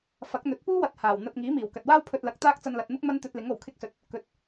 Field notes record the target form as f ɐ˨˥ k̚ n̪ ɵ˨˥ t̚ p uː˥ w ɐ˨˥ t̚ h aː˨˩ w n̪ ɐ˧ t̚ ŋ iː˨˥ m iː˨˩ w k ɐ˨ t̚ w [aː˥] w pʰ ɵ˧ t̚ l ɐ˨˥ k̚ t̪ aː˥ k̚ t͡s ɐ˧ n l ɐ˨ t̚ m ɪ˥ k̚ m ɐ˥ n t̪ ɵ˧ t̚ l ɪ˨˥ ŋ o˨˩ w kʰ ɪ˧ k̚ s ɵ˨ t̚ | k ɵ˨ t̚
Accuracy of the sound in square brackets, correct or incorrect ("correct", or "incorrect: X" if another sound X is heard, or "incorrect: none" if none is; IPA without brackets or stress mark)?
correct